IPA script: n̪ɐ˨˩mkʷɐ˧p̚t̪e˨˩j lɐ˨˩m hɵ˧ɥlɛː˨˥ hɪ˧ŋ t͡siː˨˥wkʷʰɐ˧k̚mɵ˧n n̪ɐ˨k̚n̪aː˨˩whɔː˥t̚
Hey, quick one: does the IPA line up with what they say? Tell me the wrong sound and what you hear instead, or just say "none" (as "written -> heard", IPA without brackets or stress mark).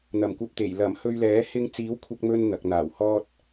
none